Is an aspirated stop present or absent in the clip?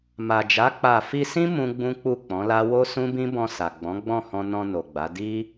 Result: absent